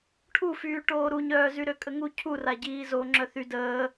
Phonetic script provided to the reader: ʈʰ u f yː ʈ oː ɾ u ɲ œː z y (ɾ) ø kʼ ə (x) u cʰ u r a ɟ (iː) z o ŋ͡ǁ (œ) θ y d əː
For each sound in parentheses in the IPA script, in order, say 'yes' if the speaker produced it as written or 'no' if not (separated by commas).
yes, no, yes, yes